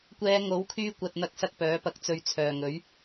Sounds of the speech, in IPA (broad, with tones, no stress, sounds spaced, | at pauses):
kʷ ɛː˨˧ ŋ o˨˥ w kʰ yː˧ kʷ ɐ˧ t̚ n̪ ɐ˧ k̚ s ɐ˧ k̚ p œː˨˥ p ɐ˧ k̚ t͡s ɵ˧ ɥ t͡sʰ œː˨ ŋ ɵ˨˥ ɥ